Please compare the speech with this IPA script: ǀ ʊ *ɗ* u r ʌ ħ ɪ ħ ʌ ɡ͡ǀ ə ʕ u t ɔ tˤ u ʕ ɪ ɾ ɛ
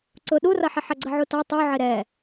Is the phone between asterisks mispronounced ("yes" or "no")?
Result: no